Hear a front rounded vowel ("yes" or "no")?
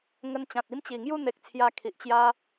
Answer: no